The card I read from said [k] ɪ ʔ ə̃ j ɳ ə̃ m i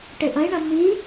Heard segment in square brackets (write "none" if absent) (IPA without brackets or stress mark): ʈ